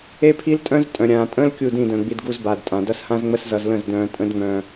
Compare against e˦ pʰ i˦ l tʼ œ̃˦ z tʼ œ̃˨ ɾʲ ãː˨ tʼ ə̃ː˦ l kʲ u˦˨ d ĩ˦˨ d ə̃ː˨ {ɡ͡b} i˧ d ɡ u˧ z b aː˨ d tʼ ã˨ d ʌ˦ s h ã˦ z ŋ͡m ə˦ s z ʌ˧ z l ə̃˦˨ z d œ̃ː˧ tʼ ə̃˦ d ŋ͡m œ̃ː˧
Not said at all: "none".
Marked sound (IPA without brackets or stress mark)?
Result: ɡ͡b